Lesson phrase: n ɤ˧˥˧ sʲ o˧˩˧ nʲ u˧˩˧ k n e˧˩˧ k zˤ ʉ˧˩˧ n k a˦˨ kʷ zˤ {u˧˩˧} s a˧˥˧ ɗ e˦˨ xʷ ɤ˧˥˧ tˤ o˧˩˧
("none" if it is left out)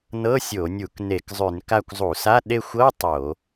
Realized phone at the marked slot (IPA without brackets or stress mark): u˧˩˧